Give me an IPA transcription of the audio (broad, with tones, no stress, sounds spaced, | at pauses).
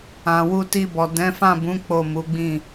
ã˨ w u˧ t i˧ b ɔ˨ d ɛ̃˨˦ f ã˦˨ b ũ˨˦ k͡p o˦˨ m u˨˦ ɡ͡b ĩ˦˨